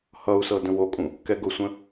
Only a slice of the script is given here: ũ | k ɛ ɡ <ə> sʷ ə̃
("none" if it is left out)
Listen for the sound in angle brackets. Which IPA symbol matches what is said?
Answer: ʊ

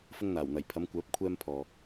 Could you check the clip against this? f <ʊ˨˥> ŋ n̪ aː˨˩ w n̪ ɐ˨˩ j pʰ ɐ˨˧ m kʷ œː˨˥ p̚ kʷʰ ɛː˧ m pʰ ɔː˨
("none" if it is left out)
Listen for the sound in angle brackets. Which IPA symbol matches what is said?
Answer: ʊ˧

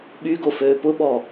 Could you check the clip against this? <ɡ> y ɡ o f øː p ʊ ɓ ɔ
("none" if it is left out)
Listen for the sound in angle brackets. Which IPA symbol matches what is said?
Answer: ɓ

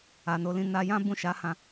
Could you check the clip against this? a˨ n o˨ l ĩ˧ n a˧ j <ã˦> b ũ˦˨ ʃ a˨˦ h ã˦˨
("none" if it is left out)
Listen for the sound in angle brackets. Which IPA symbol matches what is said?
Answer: ã˦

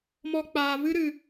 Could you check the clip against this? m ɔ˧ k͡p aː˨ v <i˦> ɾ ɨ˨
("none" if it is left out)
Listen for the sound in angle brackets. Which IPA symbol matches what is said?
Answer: ɨ˦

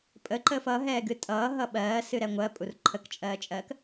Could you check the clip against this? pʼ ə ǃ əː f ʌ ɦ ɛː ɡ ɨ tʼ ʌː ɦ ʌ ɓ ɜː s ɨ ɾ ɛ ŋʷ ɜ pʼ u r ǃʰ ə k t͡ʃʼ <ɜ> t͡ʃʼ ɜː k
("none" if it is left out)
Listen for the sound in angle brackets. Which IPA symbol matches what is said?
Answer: ɜː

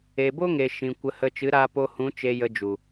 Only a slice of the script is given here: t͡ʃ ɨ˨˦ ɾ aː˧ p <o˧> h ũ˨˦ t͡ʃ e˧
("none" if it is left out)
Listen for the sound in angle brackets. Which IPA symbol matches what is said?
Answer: o˧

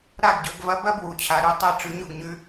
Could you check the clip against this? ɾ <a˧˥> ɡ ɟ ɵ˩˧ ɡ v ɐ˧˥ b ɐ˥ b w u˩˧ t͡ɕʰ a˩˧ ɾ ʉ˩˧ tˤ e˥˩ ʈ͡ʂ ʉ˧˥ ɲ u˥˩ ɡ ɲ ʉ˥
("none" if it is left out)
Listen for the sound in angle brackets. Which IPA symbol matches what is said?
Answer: a˥˩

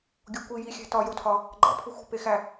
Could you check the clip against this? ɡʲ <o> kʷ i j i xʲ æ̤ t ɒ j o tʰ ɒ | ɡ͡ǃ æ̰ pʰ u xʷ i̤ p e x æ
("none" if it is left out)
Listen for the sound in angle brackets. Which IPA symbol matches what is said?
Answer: o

